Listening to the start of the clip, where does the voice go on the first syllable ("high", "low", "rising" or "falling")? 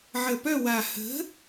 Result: low